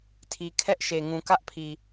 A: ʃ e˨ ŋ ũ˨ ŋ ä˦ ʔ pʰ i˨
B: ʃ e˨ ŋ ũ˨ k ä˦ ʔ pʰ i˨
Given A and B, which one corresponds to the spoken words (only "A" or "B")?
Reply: B